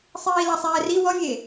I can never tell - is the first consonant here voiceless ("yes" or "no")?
yes